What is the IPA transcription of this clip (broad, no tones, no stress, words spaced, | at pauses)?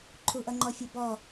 ǃʰuʔʌŋ͡ǃɔfʲɛ bɔ